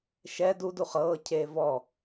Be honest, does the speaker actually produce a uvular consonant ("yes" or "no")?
yes